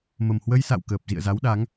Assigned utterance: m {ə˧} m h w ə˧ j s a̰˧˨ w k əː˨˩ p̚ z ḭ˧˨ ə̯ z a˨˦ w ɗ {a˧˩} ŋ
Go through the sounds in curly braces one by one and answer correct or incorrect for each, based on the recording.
incorrect: ə˨˩, incorrect: a˨˦

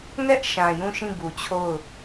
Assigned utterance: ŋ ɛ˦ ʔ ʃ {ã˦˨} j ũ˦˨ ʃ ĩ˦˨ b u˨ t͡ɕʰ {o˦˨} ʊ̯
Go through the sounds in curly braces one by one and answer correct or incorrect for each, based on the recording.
incorrect: ã˨, correct

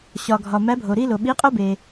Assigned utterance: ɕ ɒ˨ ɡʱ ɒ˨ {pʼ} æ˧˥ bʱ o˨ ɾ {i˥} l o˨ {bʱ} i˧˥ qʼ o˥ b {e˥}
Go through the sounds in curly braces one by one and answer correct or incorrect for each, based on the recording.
incorrect: m, correct, incorrect: ɓ, incorrect: e˨

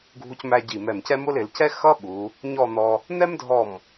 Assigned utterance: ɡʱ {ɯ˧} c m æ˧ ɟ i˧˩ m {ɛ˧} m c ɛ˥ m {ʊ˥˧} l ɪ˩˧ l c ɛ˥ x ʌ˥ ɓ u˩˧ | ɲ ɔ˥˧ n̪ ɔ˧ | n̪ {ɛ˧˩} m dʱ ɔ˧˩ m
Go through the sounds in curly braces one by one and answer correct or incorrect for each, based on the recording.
incorrect: u˧, incorrect: ɛ˧˩, incorrect: ʊ˥, incorrect: ɛ˥

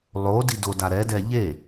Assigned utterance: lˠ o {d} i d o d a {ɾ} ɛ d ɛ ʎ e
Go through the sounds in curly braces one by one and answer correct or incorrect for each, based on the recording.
correct, correct

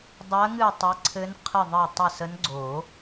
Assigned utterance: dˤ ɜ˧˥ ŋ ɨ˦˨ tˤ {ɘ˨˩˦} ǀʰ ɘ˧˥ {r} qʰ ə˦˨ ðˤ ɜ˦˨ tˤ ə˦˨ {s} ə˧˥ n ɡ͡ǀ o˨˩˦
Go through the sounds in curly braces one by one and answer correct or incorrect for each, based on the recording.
incorrect: ɘ˧˥, incorrect: n, correct

